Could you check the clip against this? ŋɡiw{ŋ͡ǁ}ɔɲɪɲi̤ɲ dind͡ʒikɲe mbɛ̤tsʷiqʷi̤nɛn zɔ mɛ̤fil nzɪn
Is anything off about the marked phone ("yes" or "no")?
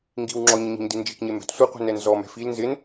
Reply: no